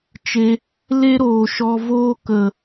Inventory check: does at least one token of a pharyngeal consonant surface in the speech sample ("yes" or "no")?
no